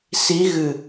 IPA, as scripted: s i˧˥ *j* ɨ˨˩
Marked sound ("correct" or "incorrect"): incorrect